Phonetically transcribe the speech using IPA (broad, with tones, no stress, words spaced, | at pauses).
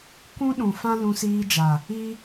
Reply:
kʷũ˦ɗũ˨ fã˦lũ˧siː˧d͡ʒa˨ | i˦